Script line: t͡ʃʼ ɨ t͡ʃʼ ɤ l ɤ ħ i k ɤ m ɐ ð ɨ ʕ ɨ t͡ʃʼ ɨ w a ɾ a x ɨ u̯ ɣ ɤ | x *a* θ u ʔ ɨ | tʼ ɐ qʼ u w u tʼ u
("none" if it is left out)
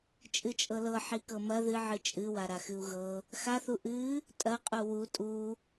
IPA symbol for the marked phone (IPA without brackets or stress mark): a